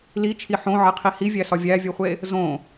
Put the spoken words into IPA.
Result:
l i t͡ʃʰ i ħ õ ʕ e qʰ i h i vʲ æ s ɒ vʲ æ vʲ u χʷ e | z õ

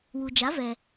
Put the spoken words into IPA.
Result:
w u˩ d͡ʒ a˩˥ v ɛ˩

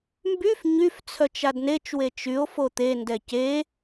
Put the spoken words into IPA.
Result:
m b y f ɲ y f t͡sʰ œ t͡ʃ a d n e t͡ʃ w e t͡ʃ y o̯ f o t̪ e n d ɛ c e

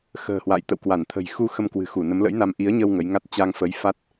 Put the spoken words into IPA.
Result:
x ə̤ː˨˩ h w a̰ː˧˨ j t̪ ə̰˧˨ w k w a˧˩ n t̪ʰ ə̤˨˩ j x u˧ x ə˧ m k w ɨ̤˨˩ x u˧˩ n ə˨˦ m l ə̰˧˥ j n a˧ m ʔ i˨˦ ə̯ ɲ ə˧ w ŋ ə˨˦ j ŋ a˦˥ t̚ t͡ɕ a˧ ŋ f ə˨˦ j f a˦˥ t̚

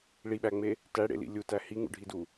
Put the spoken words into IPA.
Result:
ɭ i ɓ æ ŋ͡m e | t æ ɽ ḛ l ḭ lʲ u t æ h i ŋ ṵ ɖʱ i d u

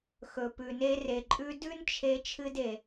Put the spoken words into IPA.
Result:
x ɵ˨ p ʉ˨ n e˦ r e˨ ǃʼ ʉ˦ d ʉ˥ n t͡ʃʰ e˦ t͡ʃʰ ɨ˦ d e˨

